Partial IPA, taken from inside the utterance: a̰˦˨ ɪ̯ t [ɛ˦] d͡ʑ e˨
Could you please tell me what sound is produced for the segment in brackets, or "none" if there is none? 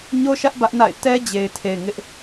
ɛ˦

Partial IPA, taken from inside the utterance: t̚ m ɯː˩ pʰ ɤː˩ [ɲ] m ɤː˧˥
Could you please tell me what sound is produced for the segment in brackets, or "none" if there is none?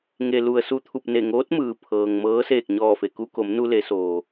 ŋ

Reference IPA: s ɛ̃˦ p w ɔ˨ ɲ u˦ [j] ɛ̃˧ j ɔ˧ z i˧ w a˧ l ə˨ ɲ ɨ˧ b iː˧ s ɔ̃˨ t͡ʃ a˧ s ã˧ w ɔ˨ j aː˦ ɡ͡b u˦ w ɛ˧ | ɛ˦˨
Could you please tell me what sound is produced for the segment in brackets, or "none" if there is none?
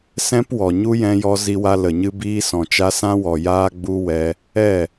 j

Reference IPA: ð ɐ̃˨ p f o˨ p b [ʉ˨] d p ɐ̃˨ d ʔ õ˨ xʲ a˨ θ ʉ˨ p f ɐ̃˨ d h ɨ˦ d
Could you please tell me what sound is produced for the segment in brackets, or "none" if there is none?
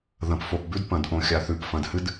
ʉ˦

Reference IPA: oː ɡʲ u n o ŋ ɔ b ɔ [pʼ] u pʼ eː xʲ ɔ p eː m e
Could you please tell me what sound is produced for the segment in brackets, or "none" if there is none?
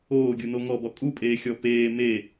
kʼ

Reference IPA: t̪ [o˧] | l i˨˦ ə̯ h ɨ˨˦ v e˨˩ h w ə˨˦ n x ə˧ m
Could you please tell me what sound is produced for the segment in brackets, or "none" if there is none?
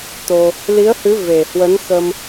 o˧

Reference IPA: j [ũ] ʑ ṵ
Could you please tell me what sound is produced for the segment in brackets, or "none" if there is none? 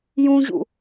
ũ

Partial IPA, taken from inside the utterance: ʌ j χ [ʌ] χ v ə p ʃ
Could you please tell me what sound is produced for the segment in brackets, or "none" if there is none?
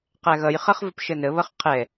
ʌ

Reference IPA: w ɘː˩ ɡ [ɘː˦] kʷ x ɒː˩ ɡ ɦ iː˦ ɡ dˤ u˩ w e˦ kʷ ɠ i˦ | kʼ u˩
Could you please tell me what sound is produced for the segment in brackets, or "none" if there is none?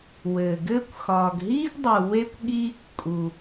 ɘː˦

